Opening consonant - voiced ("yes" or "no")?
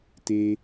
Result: no